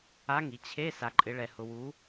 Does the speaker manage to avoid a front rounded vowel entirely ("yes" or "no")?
yes